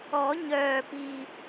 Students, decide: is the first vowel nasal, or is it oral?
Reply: oral